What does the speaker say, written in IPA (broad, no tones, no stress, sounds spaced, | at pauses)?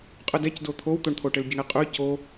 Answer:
qʼ ɯ d ɛ c d o t̪ʰ o w t̪ o ɳ t̪ʰ o ʈ ɘ l ɟ ə ɳ i qʼ ʉ c o